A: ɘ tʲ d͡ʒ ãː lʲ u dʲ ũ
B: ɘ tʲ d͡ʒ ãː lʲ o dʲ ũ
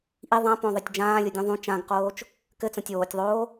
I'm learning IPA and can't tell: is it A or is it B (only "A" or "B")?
B